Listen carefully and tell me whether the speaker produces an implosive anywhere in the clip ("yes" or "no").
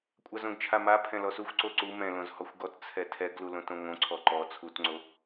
no